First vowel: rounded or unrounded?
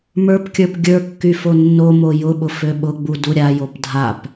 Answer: unrounded